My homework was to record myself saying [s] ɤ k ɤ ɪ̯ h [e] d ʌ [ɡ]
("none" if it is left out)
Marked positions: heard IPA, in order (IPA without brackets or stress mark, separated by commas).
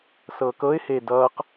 s, e, q